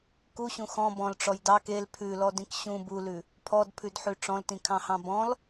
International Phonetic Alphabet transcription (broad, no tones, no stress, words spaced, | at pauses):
kuɕũ xɔ̃ bɔ̃lʈ͡ʂɔj dɑk el pʰʉlɔdĩk ɕũ bulʉ | pʰɔdpʰʉdħʉ ʈ͡ʂɔ̃ltĩkʰɑ̃hɑ̃ bɔ̃l